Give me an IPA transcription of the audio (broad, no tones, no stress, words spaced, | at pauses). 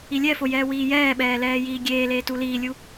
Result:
ilʲɛfo jɛːwiːjɛːɓɛː lɛːjiːɡʲeːleː tuliːlʲu